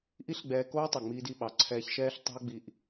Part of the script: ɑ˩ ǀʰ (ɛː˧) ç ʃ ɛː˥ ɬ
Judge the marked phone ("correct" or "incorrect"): correct